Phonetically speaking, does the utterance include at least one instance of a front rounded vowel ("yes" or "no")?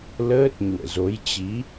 no